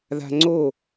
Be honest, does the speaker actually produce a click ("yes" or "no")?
yes